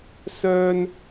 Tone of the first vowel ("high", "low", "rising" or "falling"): high